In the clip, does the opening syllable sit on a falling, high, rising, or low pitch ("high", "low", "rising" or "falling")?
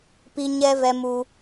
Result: high